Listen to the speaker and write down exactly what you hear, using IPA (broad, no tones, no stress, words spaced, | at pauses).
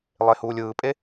lˠehuːlʲɯːpʼe